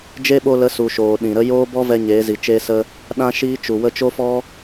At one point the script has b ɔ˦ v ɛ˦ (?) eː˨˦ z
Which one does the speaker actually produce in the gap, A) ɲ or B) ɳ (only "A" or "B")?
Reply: A